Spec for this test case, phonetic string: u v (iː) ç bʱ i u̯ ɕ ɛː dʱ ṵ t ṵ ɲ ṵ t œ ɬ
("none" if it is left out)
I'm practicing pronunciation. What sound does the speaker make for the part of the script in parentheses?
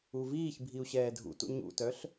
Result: iː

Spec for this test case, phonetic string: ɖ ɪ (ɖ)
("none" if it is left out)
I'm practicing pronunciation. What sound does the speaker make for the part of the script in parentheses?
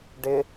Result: none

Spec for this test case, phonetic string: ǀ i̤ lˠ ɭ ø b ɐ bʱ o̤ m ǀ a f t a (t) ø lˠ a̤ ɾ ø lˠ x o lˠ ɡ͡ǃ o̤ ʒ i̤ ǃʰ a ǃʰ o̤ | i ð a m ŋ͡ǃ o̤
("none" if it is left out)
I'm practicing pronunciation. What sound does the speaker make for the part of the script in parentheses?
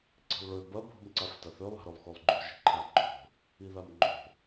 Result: θ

